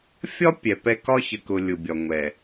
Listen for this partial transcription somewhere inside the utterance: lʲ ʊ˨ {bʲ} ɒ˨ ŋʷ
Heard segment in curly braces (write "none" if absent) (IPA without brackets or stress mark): bʲ